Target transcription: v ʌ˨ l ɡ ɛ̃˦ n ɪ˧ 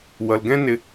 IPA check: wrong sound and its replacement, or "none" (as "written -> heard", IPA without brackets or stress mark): v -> w